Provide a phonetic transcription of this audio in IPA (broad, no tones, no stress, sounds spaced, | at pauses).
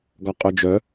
ɡ ɒ qʼ œ d͡ʒ œ